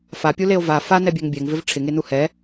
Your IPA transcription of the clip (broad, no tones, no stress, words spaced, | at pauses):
fapʲuleo̯ va fanɛbʲɛŋ bʲɛŋvɪv ʈ͡ʂʰɪŋenu hɛ